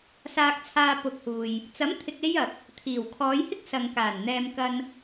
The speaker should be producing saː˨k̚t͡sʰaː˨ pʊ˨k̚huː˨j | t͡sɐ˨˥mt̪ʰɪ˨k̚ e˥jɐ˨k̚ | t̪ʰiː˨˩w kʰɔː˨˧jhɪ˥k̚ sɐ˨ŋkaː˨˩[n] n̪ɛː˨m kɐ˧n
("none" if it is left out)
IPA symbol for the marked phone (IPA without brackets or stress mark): n